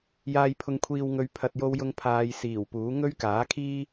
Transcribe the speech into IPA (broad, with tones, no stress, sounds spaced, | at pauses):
j aː˨ j pʰ ʊ˨˧ ŋ kʷʰ iː˨ w ŋ ɵ˨˧ ɥ pʰ ɐ˨ t̚ j o˧ w j ʊ˧ ŋ pʰ aː˧ j s iː˨˩ w p uː˨˥ ŋ ɵ˥ ɥ k aː˨˥ kʰ iː˥